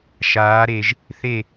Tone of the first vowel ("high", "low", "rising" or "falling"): rising